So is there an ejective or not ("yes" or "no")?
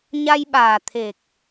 no